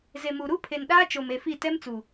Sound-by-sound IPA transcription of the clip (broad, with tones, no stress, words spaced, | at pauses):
ze˨mu˨ ɾu˦pʰe˨nɗaː˦ t͡ʃo˨me˨fi˦˨ tɛ˦mt͡su˨